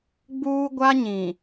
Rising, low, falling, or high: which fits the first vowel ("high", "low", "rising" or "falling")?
high